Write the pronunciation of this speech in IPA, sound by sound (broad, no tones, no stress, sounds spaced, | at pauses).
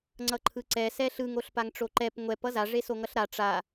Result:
ŋ͡ǀ ʌ ǃʰ ɯ ǀ ɛ s ɛ ɬ ɯ ŋ o ɬ p a ŋ ʈ͡ʂ o ǃ ɛ p ŋʷ ɛ p ʌ z a ʐ e s o ŋ ʌ ɬ ɾ a ʈ͡ʂ a